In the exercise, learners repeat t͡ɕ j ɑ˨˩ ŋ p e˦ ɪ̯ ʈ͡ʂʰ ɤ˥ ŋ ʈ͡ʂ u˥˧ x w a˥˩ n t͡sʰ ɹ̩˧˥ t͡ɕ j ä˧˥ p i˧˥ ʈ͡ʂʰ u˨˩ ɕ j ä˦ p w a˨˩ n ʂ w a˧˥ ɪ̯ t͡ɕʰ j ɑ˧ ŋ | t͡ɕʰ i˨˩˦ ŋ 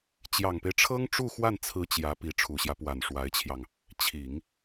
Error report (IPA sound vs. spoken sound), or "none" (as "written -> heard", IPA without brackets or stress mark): none